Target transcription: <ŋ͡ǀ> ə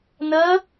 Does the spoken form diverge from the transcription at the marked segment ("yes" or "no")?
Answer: yes